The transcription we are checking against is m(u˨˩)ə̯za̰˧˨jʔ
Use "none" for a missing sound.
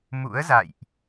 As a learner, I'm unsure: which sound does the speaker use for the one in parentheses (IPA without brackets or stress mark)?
ṵ˧˥